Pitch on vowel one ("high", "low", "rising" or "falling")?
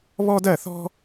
high